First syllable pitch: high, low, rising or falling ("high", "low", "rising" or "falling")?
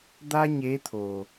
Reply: high